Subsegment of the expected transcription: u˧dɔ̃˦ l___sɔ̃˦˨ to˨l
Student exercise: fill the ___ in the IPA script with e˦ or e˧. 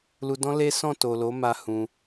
e˦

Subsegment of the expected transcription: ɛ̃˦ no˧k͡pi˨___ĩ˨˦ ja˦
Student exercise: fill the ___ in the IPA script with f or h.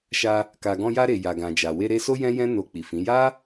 f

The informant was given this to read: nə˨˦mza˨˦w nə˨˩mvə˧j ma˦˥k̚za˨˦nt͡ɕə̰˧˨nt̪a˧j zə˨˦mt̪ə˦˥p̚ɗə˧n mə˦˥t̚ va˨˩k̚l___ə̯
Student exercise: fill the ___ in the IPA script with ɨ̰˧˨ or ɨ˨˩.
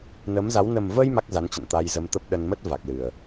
ɨ˨˩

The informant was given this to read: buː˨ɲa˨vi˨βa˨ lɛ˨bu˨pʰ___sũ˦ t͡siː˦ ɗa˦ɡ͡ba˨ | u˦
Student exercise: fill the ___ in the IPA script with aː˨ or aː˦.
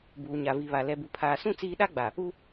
aː˨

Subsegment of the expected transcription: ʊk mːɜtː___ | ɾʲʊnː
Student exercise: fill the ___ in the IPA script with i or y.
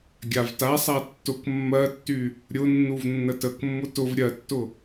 y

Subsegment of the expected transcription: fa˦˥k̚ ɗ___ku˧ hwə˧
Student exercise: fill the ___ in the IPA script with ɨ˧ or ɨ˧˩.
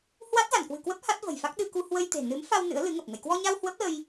ɨ˧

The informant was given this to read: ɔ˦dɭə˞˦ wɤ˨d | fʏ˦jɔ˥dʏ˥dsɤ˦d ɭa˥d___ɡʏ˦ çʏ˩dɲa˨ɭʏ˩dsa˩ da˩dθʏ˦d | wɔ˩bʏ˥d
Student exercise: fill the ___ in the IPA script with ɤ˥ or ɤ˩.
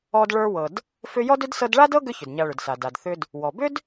ɤ˥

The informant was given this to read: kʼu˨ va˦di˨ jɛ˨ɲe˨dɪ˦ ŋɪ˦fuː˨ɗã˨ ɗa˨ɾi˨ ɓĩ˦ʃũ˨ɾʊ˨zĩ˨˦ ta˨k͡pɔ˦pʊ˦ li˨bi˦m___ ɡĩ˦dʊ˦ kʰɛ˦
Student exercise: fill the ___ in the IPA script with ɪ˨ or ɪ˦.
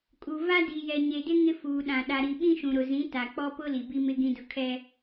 ɪ˦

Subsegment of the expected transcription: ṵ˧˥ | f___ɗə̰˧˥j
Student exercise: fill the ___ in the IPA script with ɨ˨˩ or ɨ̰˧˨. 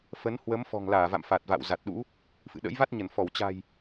ɨ̰˧˨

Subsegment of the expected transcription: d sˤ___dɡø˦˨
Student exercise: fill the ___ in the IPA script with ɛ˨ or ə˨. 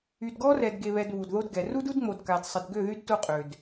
ə˨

